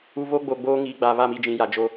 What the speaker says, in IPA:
u˨ β o˦ ɡ͡b o˨ ɡ͡b oː˦ ŋ iː˨ ɡ͡b a˨ β a˦˨ m i˨ d͡ʒ ĩ˨ j a˨ d͡ʒ o˦

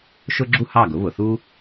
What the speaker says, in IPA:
ʃ ʊ˥ ɡ͡ǁ u˥ h ɑ˥˩ ɡ ʊ˩˥ β ʊ˩ θ u˥

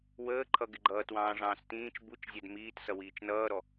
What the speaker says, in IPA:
w əː ǃʰ ʌ ɡ ɪ ɡ͡ǃ ʌː t w ɑ̃ː ʐ ɑ̃ː s t ĩː t͡ʃ b u t͡ʃ zʲ æ d m iː t s ʌ w iː t͡ʃ n ʌː ɾ ɔ

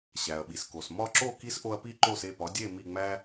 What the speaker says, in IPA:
ɕ æ˩ ɐ̯ ɓ i˩ s k o˩ s m ɒ˥˩ ǁ o˥˩ k i˥ s ʔ o˧ ɐ̯ p i˥˩ ǃ o˥˩ s e˥˩ p ɒ˩˥ dʲ e˥˩ m i˥˩ ŋ͡m æ˥

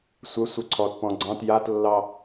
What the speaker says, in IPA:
sʷ ə sʷ ə ǀʰ ɔ t p ɔ̃ ɡ͡ǀ ɑ̃ t j a t lː ɑ

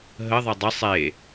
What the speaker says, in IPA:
ɦ ə ðˤ ɛ dˤ ə sˤ e

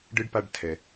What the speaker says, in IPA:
ɖ ɨ˥ ɖ p a˦ ɖ tʰ ɛ˨

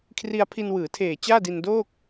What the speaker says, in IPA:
kʰ r i˧ a̯ pʰ i˧ n w ɯː˩˦ tʰ eː˨˩ t͡ɕ aː˥˩ d i˧ n d oː˥˩ k̚

